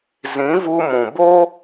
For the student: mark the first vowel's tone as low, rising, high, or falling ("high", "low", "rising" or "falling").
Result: rising